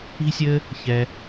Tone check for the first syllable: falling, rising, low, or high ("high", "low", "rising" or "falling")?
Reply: high